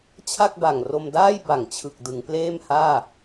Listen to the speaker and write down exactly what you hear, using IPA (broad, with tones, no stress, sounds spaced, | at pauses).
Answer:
t͡ɕʰ a˥˩ k̚ b a˨˩ ŋ r o˧ m d aː˥˩ j b a˨˩ ŋ t͡ɕʰ ɯ˨˩ k̚ d ɯ˩˦ ŋ p l eː˥˩ m h aː˥˩